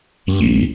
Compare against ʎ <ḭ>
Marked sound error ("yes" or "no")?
no